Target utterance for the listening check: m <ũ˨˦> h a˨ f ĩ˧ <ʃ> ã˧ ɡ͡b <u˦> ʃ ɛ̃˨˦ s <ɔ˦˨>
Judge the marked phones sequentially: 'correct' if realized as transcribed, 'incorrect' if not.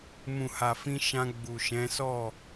incorrect: ũ˨, correct, incorrect: u˨, correct

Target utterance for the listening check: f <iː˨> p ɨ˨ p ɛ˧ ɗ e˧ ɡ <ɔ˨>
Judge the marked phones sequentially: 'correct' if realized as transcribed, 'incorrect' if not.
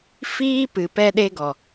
incorrect: iː˦, correct

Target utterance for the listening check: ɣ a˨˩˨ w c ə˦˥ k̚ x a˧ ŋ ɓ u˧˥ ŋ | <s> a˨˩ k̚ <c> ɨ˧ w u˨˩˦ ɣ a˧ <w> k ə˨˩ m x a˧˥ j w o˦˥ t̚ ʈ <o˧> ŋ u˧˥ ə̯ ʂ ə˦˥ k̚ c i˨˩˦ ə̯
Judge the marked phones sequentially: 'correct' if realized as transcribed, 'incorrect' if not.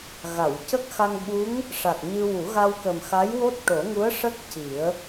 incorrect: ʂ, incorrect: ɲ, correct, incorrect: o˨˩˦

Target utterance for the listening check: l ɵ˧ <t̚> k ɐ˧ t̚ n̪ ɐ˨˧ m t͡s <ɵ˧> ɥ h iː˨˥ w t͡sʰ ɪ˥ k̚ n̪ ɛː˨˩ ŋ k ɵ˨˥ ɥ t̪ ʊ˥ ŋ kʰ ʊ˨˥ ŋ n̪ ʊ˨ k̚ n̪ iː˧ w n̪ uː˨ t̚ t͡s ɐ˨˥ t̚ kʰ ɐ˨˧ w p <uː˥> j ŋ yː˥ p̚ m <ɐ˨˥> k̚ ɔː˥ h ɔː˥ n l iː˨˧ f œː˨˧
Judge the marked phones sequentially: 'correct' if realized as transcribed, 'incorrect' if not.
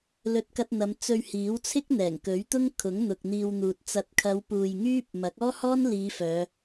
correct, correct, incorrect: uː˨, correct

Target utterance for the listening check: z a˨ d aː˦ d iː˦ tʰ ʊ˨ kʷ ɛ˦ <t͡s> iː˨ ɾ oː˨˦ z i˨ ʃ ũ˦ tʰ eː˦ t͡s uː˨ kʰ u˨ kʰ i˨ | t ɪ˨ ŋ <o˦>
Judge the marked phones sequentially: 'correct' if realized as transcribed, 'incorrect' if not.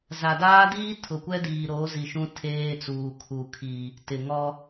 incorrect: d, incorrect: ɔ˦

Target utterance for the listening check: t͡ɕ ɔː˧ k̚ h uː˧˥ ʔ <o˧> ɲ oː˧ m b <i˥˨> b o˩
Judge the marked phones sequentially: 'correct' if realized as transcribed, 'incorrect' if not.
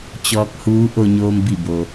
correct, incorrect: i˧˩

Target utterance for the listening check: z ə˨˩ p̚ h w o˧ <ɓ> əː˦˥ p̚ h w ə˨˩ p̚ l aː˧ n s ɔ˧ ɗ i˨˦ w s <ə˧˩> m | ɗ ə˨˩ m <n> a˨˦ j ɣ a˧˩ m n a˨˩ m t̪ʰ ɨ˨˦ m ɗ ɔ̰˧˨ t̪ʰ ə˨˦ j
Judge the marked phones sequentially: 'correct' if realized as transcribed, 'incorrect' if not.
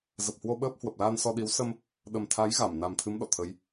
correct, incorrect: ə˧, incorrect: t̪ʰ

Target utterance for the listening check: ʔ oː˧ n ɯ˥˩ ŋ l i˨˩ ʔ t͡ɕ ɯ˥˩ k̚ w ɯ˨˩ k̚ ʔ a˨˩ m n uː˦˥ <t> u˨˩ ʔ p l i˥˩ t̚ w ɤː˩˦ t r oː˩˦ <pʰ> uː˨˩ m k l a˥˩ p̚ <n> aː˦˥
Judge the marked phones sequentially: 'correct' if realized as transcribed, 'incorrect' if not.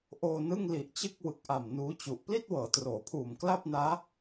incorrect: t͡ɕ, correct, correct

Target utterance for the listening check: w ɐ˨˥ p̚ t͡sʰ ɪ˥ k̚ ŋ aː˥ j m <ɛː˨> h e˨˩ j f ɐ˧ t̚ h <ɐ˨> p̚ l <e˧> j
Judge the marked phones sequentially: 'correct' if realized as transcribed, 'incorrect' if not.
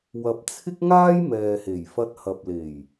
correct, correct, incorrect: e˨˩

